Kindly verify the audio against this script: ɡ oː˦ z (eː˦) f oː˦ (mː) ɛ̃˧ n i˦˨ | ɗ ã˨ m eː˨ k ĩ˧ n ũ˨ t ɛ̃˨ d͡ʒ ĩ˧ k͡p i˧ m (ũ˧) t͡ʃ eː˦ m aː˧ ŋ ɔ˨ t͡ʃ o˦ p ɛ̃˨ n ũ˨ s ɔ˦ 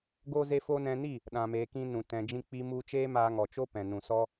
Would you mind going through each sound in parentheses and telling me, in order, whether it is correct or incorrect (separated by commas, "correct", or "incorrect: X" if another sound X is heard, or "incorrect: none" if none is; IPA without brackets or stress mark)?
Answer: incorrect: e˦, incorrect: n, incorrect: u˧